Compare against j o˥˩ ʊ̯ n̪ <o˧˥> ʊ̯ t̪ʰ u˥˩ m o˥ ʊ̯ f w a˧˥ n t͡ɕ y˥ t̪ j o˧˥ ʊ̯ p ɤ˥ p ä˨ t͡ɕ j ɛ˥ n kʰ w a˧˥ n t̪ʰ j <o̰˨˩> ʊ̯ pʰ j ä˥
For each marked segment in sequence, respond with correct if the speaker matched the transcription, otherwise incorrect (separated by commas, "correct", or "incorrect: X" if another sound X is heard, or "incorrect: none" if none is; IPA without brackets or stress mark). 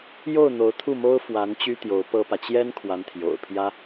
correct, correct